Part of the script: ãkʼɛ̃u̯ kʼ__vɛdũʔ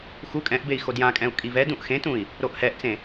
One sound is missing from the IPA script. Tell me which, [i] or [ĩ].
i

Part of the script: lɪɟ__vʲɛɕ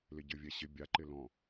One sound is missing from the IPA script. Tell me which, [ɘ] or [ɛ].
ɘ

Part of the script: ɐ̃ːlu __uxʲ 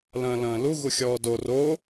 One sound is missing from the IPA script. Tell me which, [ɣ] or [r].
ɣ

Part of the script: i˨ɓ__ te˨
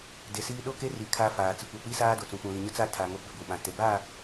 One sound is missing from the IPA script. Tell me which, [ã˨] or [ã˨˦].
ã˨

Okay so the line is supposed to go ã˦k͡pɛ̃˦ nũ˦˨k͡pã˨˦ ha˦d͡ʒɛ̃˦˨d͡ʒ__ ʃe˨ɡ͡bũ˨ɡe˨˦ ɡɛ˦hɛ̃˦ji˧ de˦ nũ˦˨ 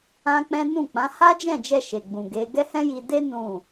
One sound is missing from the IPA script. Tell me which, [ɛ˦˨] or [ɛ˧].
ɛ˧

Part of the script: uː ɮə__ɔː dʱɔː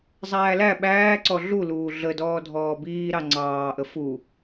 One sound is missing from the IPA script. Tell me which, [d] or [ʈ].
d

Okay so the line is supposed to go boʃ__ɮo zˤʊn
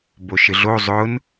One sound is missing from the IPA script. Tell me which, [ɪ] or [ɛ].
ɪ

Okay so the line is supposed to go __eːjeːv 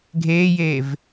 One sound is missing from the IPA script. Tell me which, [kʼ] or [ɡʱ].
ɡʱ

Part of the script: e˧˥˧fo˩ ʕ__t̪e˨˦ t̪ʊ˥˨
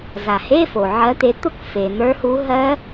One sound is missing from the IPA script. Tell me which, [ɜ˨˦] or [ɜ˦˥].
ɜ˨˦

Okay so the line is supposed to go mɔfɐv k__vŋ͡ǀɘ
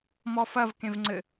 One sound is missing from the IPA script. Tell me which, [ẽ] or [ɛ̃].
ẽ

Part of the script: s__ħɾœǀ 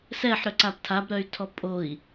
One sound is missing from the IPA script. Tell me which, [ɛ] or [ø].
ɛ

